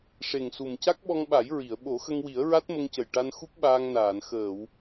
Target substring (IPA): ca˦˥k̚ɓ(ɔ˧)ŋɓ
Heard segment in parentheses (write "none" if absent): ɔ˧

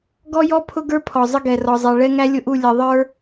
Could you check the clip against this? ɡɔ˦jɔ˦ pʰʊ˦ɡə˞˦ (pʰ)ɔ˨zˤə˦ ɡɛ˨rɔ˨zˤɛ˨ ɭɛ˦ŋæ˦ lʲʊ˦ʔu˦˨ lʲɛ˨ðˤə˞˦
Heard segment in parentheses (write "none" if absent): pʰ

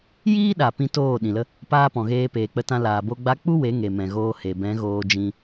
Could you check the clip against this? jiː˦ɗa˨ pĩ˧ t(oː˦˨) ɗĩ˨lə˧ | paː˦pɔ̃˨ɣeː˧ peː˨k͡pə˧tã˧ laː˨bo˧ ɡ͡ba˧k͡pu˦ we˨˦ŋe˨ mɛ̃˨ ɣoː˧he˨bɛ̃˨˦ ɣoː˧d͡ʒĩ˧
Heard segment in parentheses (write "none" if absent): oː˦˨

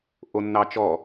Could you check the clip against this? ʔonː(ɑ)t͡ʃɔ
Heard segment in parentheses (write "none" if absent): ɑ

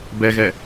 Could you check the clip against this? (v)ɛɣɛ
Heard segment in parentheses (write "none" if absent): b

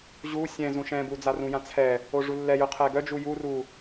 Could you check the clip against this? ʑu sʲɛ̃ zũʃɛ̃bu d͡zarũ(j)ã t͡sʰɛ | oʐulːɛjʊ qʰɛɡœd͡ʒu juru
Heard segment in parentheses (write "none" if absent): j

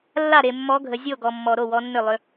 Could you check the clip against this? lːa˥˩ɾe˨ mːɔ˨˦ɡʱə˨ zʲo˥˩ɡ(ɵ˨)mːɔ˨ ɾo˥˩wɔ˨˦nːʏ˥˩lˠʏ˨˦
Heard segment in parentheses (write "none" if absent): ɔ˨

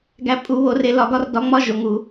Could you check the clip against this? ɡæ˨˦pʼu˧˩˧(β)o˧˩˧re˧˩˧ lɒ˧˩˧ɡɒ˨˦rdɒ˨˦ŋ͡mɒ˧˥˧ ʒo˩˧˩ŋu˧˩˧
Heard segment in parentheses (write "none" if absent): β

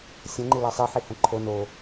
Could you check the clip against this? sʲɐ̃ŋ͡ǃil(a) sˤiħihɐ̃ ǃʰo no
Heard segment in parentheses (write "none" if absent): a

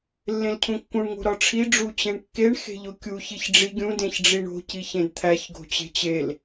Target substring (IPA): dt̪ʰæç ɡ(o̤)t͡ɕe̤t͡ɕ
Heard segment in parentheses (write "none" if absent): o̤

